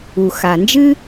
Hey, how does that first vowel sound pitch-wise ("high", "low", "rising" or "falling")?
low